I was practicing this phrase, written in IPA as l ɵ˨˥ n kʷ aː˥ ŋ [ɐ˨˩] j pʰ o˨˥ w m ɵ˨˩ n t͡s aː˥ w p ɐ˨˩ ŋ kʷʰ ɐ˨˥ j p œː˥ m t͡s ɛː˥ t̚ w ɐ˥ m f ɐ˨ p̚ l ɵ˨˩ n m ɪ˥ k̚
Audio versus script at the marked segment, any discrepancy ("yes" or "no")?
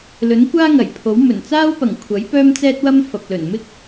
no